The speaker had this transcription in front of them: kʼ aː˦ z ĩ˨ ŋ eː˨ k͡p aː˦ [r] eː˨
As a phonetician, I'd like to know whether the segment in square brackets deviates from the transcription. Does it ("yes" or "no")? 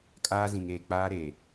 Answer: yes